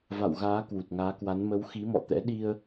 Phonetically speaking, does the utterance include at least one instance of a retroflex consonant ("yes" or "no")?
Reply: no